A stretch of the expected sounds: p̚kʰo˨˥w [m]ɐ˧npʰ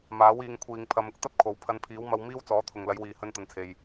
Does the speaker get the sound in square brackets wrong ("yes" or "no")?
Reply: yes